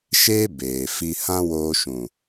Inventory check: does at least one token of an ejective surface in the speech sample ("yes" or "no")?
no